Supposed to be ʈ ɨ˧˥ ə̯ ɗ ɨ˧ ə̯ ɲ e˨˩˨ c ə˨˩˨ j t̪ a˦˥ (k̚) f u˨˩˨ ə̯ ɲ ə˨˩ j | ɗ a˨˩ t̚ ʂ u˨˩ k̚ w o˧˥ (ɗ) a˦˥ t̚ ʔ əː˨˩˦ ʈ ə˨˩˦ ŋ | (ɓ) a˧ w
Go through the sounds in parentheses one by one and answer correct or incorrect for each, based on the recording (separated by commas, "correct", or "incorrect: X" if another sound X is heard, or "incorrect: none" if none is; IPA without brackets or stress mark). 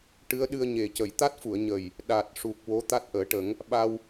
incorrect: t̚, incorrect: t̪, correct